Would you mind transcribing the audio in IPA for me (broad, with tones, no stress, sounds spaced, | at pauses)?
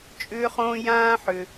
t͡ʃʼ ʏː˨ χ õː˨ j ãː˨ ħ ʏ˩